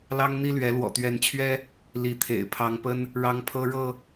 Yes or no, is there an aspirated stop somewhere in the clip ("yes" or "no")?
yes